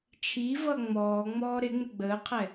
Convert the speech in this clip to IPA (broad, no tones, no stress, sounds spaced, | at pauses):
t͡ʃʰ i v ʌ ŋ͡m ɔː ŋ͡m ɔː ɾ ɪ ŋ͡m ɪ ɡ͡b əː qʰ ɛ